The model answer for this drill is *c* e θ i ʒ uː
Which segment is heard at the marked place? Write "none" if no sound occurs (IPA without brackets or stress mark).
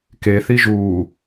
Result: k